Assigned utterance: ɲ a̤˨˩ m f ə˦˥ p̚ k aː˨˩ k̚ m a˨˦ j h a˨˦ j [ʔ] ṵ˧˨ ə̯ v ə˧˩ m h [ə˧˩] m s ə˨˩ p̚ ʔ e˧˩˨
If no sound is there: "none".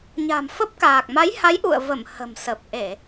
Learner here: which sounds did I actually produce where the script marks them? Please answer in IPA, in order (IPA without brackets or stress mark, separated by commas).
ʔ, ə̤˨˩